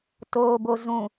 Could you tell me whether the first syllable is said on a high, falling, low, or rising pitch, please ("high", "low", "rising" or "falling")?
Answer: low